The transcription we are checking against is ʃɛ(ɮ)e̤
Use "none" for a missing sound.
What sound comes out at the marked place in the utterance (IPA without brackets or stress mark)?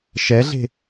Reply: ɮ